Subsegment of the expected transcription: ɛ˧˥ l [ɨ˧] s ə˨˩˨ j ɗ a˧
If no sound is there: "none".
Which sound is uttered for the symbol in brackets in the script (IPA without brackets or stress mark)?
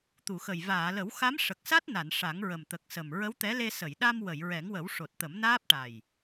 e˧